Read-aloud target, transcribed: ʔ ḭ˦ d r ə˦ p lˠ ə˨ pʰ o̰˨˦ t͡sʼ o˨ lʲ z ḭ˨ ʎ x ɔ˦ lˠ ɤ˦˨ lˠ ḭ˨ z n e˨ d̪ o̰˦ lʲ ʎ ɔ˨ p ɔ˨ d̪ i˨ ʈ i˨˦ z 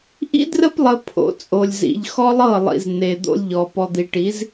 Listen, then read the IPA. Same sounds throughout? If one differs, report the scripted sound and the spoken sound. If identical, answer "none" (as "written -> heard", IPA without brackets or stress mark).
none